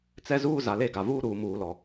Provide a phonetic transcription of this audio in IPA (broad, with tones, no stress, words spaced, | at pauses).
t͡sɛ˦zuː˦ za˨le˦˨ɡa˨ vuː˦ɾuː˨muː˨lɔ˨